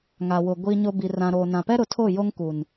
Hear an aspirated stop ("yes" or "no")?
yes